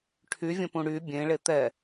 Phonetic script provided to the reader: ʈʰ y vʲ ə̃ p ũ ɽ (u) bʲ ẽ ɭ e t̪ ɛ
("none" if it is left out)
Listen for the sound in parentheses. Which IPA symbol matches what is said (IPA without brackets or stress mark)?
y